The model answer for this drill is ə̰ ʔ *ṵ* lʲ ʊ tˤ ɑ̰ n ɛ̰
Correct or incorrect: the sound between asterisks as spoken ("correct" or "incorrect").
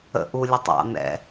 incorrect